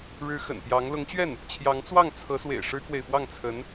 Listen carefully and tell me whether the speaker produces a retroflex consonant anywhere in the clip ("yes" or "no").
yes